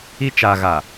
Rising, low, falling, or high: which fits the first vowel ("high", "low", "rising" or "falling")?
high